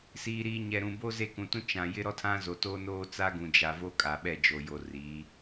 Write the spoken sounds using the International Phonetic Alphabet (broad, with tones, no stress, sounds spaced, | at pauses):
s iː˨ ɾ iː˨ ɲ ɛ˨ ɾ ũ˨ b o˦ z e˦˨ k ũ˨ t ũ˦ t͡ʃ ã˨ j ɪ˦ ɾ ɔ˦ tʰ ã˦ z o˨ t oː˦ n oː˦ t͡s a˦ ɡ ũ˨ d͡ʒ a˨ v o˦ kʼ a˨ ɓ ɛ˦˨ d͡ʒ o˨ j o˨ r iː˨˦